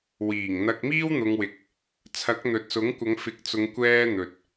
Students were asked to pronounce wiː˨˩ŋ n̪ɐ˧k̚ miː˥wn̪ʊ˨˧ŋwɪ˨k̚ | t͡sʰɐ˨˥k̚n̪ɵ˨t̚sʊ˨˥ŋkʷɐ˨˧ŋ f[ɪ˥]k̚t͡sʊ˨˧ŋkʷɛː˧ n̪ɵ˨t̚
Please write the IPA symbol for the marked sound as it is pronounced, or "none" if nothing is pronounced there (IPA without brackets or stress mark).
ɪ˨˥